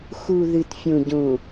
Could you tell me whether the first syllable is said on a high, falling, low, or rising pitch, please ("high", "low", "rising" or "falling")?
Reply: low